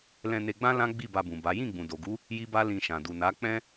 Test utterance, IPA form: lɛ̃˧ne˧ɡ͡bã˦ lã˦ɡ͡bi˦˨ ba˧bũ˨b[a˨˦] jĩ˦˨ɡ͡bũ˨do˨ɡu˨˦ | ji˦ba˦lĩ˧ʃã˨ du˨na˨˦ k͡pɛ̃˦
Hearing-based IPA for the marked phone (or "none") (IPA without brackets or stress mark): a˨˦